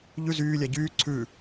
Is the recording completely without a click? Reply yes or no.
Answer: no